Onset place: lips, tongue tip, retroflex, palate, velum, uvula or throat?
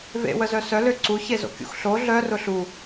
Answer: lips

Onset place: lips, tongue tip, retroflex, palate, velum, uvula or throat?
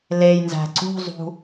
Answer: tongue tip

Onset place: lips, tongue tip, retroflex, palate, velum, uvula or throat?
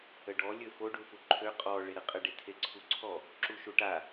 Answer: retroflex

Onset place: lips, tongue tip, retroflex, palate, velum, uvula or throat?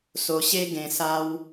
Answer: tongue tip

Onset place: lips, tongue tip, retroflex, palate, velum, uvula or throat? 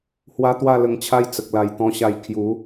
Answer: throat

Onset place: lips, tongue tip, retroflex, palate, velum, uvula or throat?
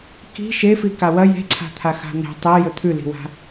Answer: velum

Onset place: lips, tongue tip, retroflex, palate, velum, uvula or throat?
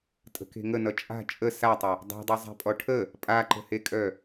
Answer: tongue tip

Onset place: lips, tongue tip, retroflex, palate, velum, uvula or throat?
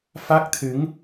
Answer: lips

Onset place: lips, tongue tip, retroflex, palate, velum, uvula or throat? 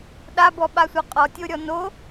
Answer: tongue tip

